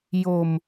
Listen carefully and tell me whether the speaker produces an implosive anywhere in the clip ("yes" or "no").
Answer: no